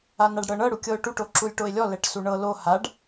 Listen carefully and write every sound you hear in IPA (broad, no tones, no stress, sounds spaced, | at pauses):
a n a ɖ ɽ ɤ ɳ ɤ ɽ u kʲ ɤ ʊ̯ ʈ u ʈ o ǁ u lʲ ʈ o ɪ̯ lʲ ɔ l ɛ ʈ s u ɳ ɤ l o h a ɖ